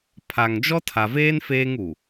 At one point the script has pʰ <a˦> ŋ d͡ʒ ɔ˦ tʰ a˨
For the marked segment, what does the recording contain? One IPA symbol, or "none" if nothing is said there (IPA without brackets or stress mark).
a˨